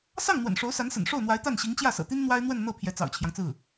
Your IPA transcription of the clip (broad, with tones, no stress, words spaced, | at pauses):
sɑ˥˩ŋ n̪wə̰˨˩n ʂo˧˥ʊ̯sa˧˥nsə̰˨˩n ʂo˥˩ʊ̯n̪wa˧˥ɪ̯ t̪a˥˩nɕi˧˥ŋ t͡ɕjä˥˩sɤ̰˨˩t̪i˥n n̪wa˥ɪ̯n̪wə˥˧nn̪ɤ˥˩ pʰjɛ˧˥t͡sɑ̰˨˩ʊ̯t͡ɕʰjɑ˦ŋt͡sɹ̩˥˩